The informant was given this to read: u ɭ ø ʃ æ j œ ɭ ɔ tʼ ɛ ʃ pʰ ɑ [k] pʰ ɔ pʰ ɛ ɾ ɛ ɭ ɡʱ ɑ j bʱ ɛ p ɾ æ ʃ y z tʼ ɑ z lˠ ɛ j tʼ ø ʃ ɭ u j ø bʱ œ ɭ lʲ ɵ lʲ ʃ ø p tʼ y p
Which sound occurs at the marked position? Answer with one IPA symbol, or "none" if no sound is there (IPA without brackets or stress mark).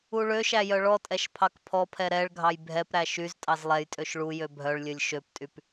k